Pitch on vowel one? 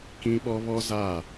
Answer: high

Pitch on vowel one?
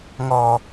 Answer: low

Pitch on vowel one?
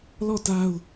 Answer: falling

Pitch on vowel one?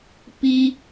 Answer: high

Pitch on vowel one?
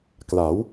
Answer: rising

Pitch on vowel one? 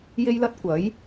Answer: high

